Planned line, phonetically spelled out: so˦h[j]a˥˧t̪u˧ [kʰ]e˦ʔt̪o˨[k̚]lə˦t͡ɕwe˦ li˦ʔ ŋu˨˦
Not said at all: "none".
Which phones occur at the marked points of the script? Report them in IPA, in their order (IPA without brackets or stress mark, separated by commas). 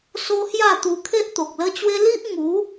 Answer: j, kʰ, k̚